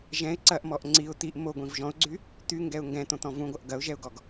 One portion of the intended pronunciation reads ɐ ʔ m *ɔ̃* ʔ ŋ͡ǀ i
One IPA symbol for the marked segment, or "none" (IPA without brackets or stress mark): ɔ